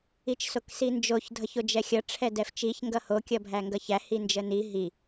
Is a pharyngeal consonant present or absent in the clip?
absent